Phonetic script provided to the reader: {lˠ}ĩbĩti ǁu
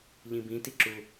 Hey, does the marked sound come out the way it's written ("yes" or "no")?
no